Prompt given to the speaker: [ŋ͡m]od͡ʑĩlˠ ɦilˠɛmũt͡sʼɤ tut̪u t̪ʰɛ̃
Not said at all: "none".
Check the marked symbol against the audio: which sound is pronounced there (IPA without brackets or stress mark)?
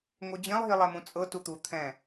ŋ